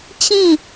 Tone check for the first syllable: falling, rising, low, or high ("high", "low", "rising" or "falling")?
falling